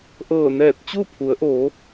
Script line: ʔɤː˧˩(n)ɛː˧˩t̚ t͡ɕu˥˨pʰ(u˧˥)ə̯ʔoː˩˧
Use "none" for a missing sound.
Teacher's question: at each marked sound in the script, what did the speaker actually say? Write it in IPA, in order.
n, u˩˧

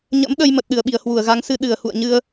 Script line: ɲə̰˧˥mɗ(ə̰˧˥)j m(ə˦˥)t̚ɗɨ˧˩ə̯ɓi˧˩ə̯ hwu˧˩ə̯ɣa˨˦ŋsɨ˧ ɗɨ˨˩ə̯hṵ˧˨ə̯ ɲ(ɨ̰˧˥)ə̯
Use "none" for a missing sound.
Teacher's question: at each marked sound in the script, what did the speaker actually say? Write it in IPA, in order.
ə˧, ə˨˩, ɨ˧

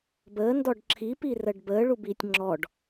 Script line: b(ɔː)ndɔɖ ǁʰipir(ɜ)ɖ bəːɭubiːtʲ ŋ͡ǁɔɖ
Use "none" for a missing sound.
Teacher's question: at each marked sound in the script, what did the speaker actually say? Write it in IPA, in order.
əː, ɜ

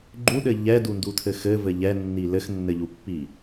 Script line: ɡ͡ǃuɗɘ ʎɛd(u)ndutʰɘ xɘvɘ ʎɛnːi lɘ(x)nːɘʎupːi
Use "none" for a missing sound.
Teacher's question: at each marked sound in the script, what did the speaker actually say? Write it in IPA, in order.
u, x

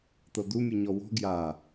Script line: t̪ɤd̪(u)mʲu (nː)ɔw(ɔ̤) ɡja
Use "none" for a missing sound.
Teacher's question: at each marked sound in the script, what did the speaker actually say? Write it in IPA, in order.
u, ɲ, ɔ̤

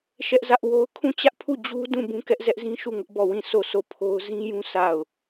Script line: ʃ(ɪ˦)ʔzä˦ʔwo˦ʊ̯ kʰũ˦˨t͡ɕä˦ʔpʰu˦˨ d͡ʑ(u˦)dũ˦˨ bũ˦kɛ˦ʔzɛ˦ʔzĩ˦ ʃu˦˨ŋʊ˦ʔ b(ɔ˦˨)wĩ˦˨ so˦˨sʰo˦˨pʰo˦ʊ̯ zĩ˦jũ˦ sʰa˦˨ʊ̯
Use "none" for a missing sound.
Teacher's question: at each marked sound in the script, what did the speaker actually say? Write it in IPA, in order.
ɛ˦, u˦, ɔ˦˨

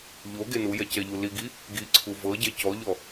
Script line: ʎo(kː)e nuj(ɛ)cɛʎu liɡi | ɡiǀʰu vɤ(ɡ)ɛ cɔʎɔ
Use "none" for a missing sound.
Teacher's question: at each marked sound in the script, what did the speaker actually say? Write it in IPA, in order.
ɡ, ɛ, ɟ

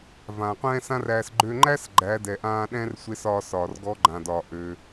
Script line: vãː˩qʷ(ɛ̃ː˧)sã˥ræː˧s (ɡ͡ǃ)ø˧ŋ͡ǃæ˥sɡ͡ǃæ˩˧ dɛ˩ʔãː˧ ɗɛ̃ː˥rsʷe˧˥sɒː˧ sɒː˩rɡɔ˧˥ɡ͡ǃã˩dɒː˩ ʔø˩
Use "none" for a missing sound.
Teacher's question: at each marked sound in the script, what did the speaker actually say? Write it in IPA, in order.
ɛ̃ː˥, ɡ͡ǃ

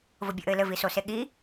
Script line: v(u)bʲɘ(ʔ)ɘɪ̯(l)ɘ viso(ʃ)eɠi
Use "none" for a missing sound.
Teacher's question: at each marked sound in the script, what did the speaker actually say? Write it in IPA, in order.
o, ʔ, l, s

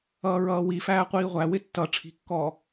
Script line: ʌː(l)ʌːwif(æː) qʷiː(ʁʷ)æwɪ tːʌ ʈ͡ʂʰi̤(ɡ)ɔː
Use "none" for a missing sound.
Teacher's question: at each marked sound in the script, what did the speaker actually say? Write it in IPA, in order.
ɹ, æː, ʁʷ, kː

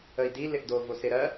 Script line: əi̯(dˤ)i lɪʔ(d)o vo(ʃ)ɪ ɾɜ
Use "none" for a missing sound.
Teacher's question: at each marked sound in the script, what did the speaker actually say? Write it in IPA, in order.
d, d, s

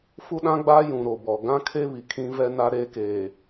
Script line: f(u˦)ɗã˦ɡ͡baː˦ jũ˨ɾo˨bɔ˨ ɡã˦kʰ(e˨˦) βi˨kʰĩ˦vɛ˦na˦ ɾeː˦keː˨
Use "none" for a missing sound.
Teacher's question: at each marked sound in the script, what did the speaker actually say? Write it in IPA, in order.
u˦, e˦

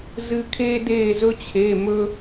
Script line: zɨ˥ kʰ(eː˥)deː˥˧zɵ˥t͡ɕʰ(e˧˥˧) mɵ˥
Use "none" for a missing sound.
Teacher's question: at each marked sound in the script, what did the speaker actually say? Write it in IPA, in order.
eː˥, e˧˥˧

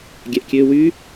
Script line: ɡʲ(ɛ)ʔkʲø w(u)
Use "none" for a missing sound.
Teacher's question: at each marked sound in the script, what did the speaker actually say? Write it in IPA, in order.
ɛ, y

